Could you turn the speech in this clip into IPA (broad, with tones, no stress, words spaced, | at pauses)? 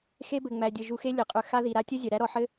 xe˦bɘ˩ ŋ͡mæ˩dʲɘ˩ ʒu˨xe˦lʲɘ˩qʼø˨ xa˦ði˩ɾa˦ tʲɘ˥zʲɛ˩ɾæ˦ ɾɔ˨ ħɘ˥